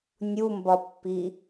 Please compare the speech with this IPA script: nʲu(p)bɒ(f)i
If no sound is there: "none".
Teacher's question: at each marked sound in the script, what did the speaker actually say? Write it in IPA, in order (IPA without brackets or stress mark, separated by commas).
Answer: m, pː